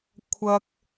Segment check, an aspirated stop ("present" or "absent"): present